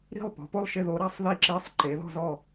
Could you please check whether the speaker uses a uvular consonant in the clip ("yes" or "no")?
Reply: no